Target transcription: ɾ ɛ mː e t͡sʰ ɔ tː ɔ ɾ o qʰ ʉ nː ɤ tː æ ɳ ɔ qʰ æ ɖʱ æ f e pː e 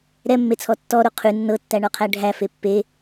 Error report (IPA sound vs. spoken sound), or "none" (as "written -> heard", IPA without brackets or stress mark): none